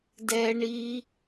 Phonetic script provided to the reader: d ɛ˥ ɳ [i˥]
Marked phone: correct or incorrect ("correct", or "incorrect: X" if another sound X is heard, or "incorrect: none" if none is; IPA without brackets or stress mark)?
correct